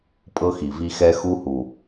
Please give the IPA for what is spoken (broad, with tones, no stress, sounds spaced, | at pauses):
pʼ ɤ˦ x i˨ v i˦ x ɛ˦ x u˦ h u˨